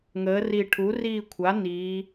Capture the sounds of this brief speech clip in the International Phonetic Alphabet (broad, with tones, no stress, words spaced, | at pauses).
ŋəː˩˧ri˨˩ ʈʰu˩˥riː˦˨kʷʰa˩˥ niː˩˧